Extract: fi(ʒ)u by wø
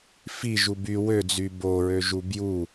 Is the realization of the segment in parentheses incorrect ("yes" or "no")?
no